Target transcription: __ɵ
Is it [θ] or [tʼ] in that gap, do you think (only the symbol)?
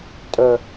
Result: tʼ